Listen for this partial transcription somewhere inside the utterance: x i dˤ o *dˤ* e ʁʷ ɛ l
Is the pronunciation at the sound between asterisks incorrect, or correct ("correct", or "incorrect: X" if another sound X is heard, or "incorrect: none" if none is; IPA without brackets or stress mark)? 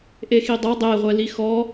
correct